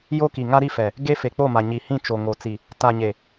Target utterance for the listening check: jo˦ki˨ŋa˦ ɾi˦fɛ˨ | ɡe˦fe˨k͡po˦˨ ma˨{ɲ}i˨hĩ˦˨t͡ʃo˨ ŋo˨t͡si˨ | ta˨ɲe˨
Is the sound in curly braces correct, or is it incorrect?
correct